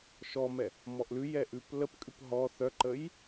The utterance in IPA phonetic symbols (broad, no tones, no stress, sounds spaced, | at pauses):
ʃ ɔ m ɛ | m ɔ ʔ l ʉ j ɛ ʔ ʉ p l ə p kʼ ʉ p ɦ ɔ θ œ ǃ ə j